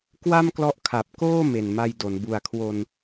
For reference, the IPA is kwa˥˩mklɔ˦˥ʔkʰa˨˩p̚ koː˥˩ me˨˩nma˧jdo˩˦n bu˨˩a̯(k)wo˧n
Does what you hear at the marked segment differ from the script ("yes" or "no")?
yes